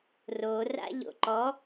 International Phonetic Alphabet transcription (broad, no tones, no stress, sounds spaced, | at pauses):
r o r a̰ ʎ o̰ ǃ ɔ